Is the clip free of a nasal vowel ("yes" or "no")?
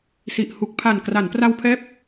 yes